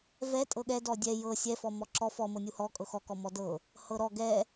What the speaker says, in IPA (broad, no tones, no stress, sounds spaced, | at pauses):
v ɛ tʼ ɤ ɠ ɛ d ɔ dʲ ɛ j ɤ sʲ ɛ f ɔ m ɔ ǁ ɔ f ɔ m ɤ nʲ u h ɔ kʼ ɤ x ɔ k ɔ m ɔ d ɤ | h ɤ ɾ ɔ ɡ ɛ